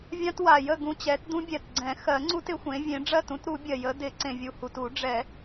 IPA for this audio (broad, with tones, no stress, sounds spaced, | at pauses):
vʲ ã˦ t w a˨˩ j ə˥˨ ɡ ũ˦ t͡ɕ ɛ˨˥ t d ũ˦ bʲ ɛ˨˩ t ɡ͡ǀ ɛ̃˨˩˦ x ɜ˨˩˦ ŋ͡ǀ u˦ t ɪ˨˩˦ xʷ ẽ˨˥ vʲ ẽ˨˥ ɖ͡ʐ ɜ˥˨ t ũ˦ t ɾ u˨˩˦ bʲ ɜ˨˩ j ə˨˥ d ɪ˨˩˦ ǀ ẽ˨˩ vʲ u˨˩ h u˨˩ t u˨˩˦ ɖ͡ʐ ɛ˨˩˦